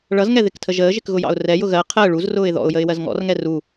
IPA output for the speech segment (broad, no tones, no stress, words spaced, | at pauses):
ɭʌzŋɛ ðɪktʰəʒəːʒɪk ɣʊjɑ̰ʊ̯rɛjʊ ɣɜ qʰəː ɭuzrʊːɪ̯ ðɔ̰ʊ̯jəɪ̯ wɜzŋɔ̰rŋɛ ru